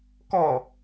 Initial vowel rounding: rounded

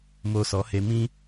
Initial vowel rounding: rounded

